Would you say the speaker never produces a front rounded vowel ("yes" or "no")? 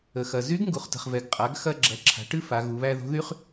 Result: no